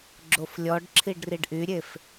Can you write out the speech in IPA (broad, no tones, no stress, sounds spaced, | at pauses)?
ɡ͡ǁ o f lʲ ɔ ɖ ǁʰ i ɖ r i ɖ ʔ y ɾʲ e f